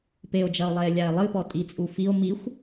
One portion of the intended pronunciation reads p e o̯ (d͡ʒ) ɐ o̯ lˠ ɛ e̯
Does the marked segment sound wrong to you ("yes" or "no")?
no